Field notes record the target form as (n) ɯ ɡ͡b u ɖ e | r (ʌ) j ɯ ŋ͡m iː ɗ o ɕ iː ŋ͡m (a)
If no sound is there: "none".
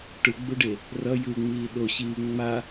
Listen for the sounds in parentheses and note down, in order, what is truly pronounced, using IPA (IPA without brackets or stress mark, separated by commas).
ʈ, ʌ, a